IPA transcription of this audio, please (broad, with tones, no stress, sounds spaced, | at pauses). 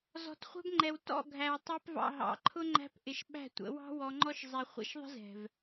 z ɔ̤˨ t χʷ ɛ̤˧ b ŋ͡ǃ ɛ˨ w t ɔ̰˦˨ ɡʱ æ˨ w tˤ æ˧ p v ɑ̰˨ ɦ ɑ̰˨˦ ǃʰ ʊ˦ ŋ͡ǃ æ̤˧ p ʔ ɪ˨ ʃ ɓ æ̤˦˨ tʷ ə̰˨˦ w ɑ̤˦ w ɔ˧ ŋ͡ǃ ɔ˦ ʃ zˤ ɛ˧ χʷ ḭ˧ ʃ ðˤ ə̤˦ z ɛ̤˨ v